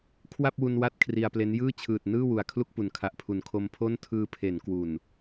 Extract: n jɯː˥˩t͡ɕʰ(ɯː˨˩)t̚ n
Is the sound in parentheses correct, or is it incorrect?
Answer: correct